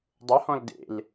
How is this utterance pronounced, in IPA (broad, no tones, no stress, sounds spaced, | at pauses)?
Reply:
dˤ ʊ h ɔ̃ l d ḛ l